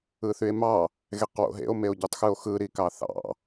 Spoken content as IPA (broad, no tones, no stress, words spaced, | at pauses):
ɯθye̯mɑ | ɣeqwo̰ɦḛo̯ meo̯ɟutˤxɯo̯xɯ ɾikɑθɑ̰